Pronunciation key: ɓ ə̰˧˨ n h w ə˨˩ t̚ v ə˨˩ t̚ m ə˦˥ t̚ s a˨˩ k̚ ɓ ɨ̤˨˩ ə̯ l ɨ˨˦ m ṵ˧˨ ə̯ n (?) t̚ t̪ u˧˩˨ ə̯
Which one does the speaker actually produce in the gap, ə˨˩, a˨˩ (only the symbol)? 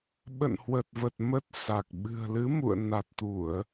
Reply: a˨˩